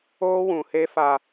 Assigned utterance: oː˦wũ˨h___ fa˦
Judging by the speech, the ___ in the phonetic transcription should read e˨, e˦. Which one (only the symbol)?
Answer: e˦